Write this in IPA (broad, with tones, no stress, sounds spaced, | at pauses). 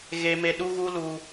ɣ e˦ m e˦ ɗ u˦ ɣ u˦ l u˦